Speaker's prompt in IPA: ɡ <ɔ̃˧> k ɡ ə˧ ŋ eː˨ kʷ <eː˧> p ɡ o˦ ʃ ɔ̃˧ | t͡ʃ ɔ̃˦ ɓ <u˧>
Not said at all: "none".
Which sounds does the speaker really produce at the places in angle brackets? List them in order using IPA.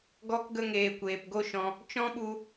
ɔ˧, eː˨, u˧

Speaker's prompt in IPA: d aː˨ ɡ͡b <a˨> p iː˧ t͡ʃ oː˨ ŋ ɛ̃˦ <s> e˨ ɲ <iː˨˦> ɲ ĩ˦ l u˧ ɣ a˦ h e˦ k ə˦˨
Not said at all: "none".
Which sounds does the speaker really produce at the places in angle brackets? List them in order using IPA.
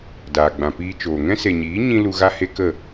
ã˨, s, iː˨˦

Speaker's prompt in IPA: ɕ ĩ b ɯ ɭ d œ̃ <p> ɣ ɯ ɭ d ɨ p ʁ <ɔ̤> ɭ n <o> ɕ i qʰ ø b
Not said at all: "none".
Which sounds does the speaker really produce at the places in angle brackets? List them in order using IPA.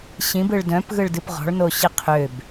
p, ɔ̤, o

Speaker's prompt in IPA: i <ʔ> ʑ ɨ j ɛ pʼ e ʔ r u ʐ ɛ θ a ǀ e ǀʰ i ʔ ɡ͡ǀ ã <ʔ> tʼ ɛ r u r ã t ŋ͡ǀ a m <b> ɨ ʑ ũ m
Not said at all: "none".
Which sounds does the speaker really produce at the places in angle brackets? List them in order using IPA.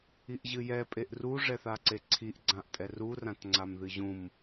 ʔ, ʔ, ð

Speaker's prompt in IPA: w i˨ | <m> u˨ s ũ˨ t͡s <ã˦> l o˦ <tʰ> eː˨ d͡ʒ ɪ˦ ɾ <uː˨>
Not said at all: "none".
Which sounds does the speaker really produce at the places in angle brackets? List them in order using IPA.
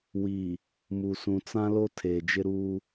m, ã˦, tʰ, uː˦

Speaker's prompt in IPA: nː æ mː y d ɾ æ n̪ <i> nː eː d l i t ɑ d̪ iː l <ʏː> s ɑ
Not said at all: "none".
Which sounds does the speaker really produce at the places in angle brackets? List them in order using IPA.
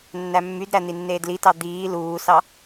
i, uː

